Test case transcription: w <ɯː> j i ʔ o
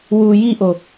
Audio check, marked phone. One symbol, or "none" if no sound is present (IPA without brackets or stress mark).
uː